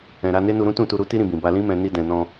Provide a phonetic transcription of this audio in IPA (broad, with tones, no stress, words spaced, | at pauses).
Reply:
ɛ̃˨ ɾa˧ne˦nu˧ɾũ˦ tũ˦˨tu˧ɾu˦ ti˦ɾĩ˧bĩ˨ba˧ lĩ˦mɛ̃˧ ni˧dɛ̃˨nɔ̃˧